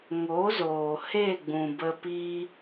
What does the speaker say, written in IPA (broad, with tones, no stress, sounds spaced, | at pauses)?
ŋ o˨˦ z oː˨ h e˦˨ ɡ͡b ũ˨ b ə˧ p iː˧